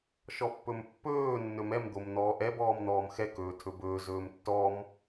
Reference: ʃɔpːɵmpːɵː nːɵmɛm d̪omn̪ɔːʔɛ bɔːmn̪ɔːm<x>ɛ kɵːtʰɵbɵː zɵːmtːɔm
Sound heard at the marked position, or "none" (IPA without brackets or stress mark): x